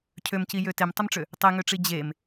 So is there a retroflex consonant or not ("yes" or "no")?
yes